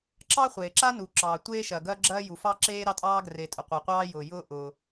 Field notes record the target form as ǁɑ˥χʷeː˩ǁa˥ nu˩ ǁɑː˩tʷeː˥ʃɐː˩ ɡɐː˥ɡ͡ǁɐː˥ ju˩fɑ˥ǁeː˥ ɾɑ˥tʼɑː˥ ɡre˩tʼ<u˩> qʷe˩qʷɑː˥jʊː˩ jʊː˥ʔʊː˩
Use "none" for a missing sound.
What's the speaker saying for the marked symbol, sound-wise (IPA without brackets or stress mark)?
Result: ʊ˩